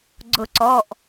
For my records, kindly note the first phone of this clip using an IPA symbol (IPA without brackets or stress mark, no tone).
ɡ͡ǀ